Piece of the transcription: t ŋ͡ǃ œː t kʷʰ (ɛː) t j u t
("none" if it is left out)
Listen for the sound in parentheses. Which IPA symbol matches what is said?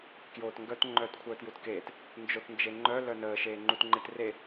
œː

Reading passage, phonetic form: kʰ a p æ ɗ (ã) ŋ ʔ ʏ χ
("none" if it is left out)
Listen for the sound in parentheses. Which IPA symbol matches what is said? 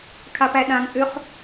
ã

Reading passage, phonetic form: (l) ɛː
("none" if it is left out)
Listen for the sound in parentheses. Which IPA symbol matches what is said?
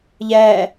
ʎ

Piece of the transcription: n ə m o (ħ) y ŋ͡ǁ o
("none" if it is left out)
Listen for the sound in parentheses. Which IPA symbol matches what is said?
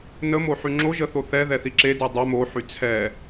ħ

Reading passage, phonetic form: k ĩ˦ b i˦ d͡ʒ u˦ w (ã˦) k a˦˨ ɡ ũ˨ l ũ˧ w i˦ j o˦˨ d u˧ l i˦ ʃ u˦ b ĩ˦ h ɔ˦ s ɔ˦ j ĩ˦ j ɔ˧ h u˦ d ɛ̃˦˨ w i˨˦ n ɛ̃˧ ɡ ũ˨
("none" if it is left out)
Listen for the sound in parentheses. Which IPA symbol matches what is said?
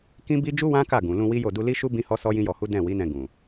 ã˦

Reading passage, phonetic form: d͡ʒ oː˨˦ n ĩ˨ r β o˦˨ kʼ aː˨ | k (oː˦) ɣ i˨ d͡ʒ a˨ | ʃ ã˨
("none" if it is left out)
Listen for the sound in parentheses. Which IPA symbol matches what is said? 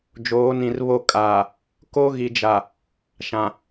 o˦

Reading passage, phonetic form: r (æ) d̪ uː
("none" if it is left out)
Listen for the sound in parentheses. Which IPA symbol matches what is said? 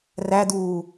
æ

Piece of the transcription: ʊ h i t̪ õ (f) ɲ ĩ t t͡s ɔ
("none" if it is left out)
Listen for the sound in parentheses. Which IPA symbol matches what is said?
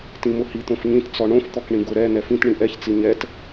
f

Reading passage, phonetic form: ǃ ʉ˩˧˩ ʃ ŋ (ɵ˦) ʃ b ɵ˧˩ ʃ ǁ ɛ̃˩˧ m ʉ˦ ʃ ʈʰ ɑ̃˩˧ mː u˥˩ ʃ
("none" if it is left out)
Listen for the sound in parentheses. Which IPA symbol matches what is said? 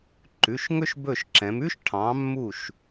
ɵ˦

